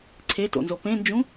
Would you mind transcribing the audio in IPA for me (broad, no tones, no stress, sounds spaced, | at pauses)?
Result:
ǀʰ e t o̰ n z o p ẽ n d͡ʒ ũ